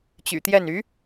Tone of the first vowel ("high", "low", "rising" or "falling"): low